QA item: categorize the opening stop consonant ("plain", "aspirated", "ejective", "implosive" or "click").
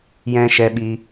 implosive